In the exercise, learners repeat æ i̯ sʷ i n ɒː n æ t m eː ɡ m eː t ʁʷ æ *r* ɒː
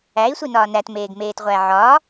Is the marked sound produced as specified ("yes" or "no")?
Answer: no